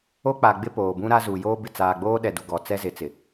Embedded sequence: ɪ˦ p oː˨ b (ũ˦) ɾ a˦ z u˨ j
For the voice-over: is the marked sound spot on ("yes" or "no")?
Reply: yes